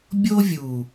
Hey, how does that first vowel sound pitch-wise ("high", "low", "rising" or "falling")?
high